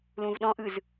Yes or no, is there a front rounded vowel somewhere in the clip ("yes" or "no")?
no